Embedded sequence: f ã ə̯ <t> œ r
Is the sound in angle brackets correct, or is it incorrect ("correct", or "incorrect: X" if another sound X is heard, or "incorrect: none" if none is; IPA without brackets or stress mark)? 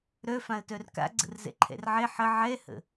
correct